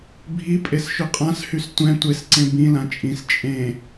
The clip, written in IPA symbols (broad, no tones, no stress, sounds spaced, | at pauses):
bʱ i pʼ e s ʃ ɵ qʼ ã s h y s tʷ ɛ̃ tʷ e s ǀ ẽ b ĩ l ã t͡ʃʼ ĩ s t͡ʃʼ ẽ